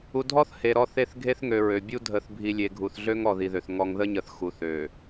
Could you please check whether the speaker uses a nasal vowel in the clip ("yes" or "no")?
no